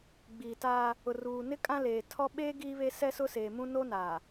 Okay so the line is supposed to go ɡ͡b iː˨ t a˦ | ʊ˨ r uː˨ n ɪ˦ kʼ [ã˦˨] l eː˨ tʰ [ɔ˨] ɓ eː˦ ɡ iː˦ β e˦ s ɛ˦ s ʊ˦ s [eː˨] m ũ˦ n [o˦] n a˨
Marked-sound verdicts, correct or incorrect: incorrect: ã˦, incorrect: ɔ˦, correct, correct

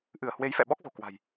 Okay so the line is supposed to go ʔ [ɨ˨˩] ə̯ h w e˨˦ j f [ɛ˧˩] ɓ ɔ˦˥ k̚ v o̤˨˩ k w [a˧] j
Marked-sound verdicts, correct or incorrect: incorrect: ɨ˧˩, incorrect: ɛ̰˧˨, incorrect: a̤˨˩

